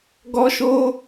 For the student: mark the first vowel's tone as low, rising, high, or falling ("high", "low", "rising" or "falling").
high